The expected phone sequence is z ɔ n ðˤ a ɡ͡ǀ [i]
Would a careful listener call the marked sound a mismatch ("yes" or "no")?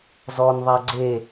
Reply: yes